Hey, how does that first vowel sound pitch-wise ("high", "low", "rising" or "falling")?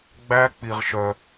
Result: high